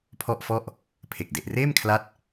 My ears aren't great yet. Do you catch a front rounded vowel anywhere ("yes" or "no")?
no